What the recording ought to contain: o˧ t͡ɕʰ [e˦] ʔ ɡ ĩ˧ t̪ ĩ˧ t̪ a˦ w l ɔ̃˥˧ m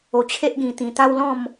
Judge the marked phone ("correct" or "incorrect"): correct